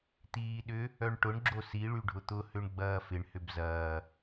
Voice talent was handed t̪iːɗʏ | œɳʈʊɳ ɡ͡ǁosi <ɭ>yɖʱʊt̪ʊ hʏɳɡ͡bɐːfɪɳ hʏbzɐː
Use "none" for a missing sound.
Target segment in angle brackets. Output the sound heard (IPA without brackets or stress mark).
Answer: ɭ